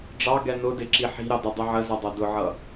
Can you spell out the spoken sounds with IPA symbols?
ɖ͡ʐ ɑ ɡ ɛ n ʊ d ɪ ǁ i ħ i̤ ɾ ɑ d ə dˤ i ʕ ə z ɛ dˤ ɛ d ʊ ʕ ʌ

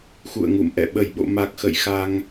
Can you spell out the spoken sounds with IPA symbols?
x ṵ˧˨ ə̯ ŋ ṵ˧˨ m ʔ ɛ̰˧˨ ɓ ə˧˩ j ɓ o̰˧˨ m a˨˩ k̚ x ə̰˧˨ j x a˧ ŋ

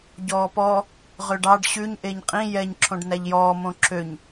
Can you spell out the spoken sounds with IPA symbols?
ɟ ɔː p ɔ | ʁ ø ɖ ɑ ɖ ɕ ʉ ɲ ʔ e ɲ qʼ ĩ j ɛ ɲ ǁʰ õ ɖ n æ ʎ j ɔː m õ ǁʰ ø ɲ

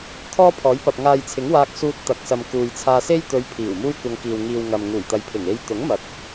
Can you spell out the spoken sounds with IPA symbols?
t̪ʰ ɔː˥ pʰ ɔː˨˥ j p ɐ˨ p̚ ŋ aː˨ j t͡sʰ ɪ˨˥ ŋ w aː˧ k̚ s uː˧ t̚ t̪ ɐ˨ k̚ s ɐ˨ m k uː˨ j t͡sʰ aː˧ s e˥ j t̪ ɵ˨˧ ɥ pʰ iː˨˩ w m uː˥ j kʷ ɐ˧ ŋ k iː˨ w ŋ iː˨ w ŋ ɐ˨ m ŋ uː˨˩ j t̪ ɐ˨˧ j pʰ ɪ˨˩ ŋ e˧ j t̪ ʊ˨˥ ŋ m ɐ˨˥ t̚

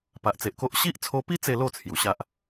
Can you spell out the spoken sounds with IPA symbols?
p a˨ ʔ t͡s e˨ ʔ k o˦ ʔ ɕ i˦ ʔ t͡sʰ o˧ p i˦ t͡s e˥˧ l o˥˧ t͡sʰ j u˨˩ ɕ a˦ ʔ

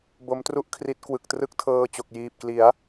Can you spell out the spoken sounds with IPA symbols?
b o˦˥ m t r u˥˩ ʔ kʰ r i˦˥ t̚ k w ɯ˨˩ k̚ t r ɯ˦˥ k̚ tʰ ɤː˧ t͡ɕ o˨˩ k̚ j iː˨˩ p̚ k l i˩˦ a̯

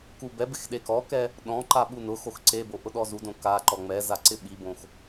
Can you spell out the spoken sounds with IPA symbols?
k u b ɛ b ɪ x ɗ e k ɔ k ɛ | ɗ ɔ̃ ǃ a ɓ u n ʊ x o x ǀ e b o ʔ ʊ ɗ ɔ z u d õ k a ǃ ɔ ŋ͡m ɛ z a ǀ ɪ ɓ i b õ x

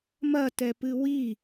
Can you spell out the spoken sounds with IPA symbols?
m ɐ t ɛ p ɨ w i

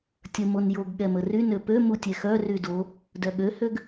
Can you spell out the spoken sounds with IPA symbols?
tʲ ə m o n j o ɡ ɠ ɛ m ə r y n ø p ø m u tʲ ɛ x œ r y d o | d œ ɠ ø h ø ɡ

